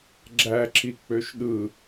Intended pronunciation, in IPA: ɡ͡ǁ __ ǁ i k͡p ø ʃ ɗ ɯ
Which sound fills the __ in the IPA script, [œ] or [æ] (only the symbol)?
æ